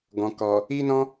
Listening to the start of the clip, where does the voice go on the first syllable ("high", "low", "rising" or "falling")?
low